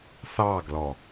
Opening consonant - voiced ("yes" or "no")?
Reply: no